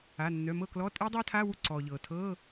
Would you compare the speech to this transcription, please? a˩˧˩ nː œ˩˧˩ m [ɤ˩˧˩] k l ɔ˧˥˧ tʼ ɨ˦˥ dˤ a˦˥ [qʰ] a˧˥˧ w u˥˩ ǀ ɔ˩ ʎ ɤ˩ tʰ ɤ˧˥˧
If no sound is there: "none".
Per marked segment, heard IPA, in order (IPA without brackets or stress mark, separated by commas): ɤ˥˩, tʰ